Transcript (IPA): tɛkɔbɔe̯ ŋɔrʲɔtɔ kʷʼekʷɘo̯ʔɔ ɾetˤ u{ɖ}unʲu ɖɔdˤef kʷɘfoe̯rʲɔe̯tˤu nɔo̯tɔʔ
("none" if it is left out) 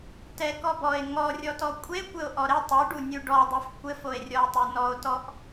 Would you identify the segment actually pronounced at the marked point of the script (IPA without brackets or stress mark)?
ɖ